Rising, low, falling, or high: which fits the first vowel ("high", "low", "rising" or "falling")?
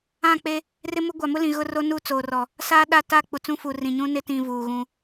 falling